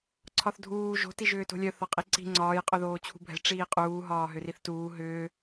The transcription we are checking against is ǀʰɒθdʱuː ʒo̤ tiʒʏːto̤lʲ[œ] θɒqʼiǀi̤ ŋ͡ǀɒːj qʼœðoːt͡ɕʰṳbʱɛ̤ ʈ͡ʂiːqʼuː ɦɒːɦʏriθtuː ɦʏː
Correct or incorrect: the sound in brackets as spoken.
correct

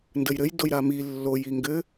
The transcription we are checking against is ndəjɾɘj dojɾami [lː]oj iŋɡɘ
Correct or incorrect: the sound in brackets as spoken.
correct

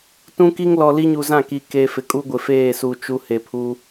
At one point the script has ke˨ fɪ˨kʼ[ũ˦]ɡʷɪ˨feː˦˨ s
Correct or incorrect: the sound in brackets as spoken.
incorrect: u˦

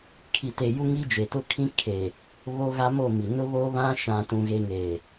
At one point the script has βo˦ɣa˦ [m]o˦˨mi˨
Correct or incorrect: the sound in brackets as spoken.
correct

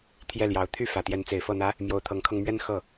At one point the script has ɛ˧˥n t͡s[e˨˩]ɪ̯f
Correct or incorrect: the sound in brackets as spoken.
correct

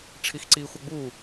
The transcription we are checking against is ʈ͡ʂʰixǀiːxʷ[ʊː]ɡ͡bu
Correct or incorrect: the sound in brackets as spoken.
incorrect: ʊ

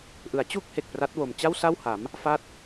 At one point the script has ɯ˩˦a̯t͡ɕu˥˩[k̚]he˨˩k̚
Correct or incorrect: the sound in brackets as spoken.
correct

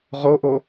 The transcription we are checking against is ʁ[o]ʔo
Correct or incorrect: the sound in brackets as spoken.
correct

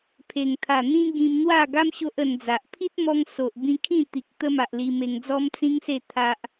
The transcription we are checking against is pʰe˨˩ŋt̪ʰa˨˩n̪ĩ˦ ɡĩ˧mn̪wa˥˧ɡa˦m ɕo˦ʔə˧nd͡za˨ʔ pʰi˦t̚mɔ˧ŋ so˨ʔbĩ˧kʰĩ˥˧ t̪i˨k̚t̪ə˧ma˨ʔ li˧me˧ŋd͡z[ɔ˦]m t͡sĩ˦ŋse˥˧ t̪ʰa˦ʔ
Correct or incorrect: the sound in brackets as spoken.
correct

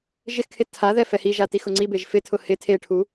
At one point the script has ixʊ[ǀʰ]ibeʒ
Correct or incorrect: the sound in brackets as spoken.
incorrect: ŋ͡ǀ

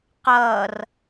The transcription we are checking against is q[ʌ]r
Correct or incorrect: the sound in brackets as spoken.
incorrect: ʌː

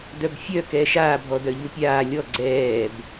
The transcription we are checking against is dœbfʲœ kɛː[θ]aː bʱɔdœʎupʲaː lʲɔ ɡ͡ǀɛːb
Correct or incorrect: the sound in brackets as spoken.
incorrect: ʃ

